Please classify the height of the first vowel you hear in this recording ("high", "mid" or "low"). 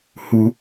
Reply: high